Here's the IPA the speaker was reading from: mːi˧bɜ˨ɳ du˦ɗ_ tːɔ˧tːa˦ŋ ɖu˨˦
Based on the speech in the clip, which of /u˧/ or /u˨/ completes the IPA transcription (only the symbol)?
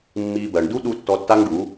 u˧